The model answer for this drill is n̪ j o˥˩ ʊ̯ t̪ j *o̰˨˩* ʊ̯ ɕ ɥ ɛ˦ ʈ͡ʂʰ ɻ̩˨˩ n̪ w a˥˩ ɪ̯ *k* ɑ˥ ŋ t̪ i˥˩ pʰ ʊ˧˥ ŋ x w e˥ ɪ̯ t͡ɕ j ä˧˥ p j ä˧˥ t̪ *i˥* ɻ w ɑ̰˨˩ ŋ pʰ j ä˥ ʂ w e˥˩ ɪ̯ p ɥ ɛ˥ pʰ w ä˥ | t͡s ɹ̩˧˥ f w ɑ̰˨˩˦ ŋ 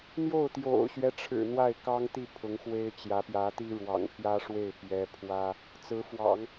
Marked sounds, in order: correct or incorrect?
correct, correct, correct

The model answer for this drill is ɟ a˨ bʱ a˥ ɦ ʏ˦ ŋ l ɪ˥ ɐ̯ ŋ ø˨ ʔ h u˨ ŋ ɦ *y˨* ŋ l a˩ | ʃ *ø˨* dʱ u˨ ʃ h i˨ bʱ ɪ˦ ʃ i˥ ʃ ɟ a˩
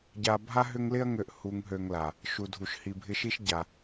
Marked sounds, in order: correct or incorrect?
incorrect: ø˨, incorrect: u˨

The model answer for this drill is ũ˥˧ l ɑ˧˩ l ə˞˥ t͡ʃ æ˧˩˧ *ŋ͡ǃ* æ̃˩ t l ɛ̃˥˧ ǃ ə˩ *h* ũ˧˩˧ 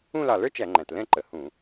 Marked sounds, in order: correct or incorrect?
correct, correct

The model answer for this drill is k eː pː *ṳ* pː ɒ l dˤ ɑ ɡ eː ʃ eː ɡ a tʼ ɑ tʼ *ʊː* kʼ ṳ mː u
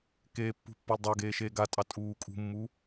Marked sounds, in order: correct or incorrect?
correct, incorrect: uː

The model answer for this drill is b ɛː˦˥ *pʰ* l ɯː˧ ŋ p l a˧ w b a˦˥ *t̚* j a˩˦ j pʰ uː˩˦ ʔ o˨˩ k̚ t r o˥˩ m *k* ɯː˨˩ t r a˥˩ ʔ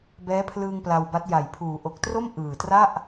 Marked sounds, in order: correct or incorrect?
correct, correct, incorrect: ʔ

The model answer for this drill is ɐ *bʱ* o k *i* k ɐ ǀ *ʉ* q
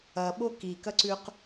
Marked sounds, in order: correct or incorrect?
incorrect: ɓ, correct, correct

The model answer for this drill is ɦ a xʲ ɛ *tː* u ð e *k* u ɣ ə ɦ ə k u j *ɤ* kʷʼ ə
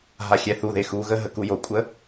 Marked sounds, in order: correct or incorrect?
incorrect: θ, incorrect: x, incorrect: o

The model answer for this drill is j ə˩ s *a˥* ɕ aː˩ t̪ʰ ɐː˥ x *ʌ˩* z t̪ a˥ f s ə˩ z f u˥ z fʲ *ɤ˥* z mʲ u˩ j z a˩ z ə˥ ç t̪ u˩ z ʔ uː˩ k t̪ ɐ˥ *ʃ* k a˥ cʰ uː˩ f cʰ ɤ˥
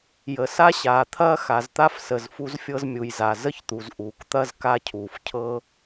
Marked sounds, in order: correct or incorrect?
correct, incorrect: a˩, correct, incorrect: z

